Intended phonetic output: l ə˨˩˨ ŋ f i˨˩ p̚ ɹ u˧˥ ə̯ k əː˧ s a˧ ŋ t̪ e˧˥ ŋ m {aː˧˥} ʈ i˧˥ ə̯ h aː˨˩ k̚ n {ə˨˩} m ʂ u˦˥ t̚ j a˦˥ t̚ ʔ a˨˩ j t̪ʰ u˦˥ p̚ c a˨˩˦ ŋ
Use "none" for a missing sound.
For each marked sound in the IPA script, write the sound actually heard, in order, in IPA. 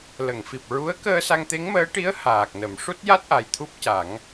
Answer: əː˧˥, ə˨˩˦

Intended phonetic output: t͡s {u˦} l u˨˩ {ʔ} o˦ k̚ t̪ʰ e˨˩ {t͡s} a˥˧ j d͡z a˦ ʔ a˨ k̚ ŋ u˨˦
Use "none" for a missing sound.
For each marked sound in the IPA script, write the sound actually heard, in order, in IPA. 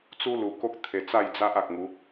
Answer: u˦, k, t͡s

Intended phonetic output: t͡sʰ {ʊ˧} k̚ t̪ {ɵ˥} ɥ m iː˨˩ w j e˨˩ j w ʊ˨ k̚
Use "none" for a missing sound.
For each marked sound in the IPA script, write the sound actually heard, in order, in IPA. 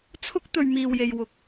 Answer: ʊ˥, ɵ˨

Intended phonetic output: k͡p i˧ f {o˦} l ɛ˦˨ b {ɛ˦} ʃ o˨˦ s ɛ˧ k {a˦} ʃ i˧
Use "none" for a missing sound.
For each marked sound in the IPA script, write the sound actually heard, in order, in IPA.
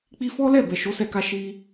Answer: ɔ˦, ɛ˨, a˧

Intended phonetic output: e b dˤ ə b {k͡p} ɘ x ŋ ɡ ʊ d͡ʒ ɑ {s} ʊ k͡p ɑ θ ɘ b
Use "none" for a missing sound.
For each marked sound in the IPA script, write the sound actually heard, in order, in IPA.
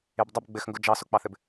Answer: ɡ͡b, s

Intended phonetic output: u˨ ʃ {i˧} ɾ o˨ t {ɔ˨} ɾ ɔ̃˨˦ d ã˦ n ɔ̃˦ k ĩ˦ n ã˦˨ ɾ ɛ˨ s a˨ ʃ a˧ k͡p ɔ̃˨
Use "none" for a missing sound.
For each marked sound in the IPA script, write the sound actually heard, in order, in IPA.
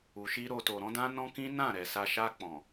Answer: i˧, o˨

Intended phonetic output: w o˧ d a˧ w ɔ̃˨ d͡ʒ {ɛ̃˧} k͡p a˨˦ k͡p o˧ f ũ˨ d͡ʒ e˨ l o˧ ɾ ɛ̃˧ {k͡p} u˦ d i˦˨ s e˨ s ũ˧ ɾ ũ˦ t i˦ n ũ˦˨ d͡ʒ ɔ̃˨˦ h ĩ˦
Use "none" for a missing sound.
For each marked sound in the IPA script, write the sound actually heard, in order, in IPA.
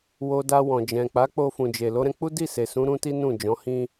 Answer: ɛ̃˨, k͡p

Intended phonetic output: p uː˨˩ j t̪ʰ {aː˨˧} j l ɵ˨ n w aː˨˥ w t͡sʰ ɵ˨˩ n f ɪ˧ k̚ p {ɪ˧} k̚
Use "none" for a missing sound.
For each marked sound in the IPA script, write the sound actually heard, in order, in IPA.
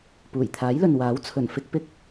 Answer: aː˨˥, ɪ˧

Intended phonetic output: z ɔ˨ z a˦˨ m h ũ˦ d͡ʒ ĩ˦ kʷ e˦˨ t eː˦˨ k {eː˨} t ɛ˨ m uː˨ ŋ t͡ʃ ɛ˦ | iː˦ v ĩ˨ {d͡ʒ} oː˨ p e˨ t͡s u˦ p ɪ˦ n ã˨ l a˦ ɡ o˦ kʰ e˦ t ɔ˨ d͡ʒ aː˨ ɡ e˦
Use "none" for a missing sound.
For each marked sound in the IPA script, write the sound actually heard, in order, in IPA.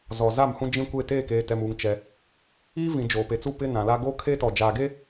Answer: eː˨, d͡ʒ

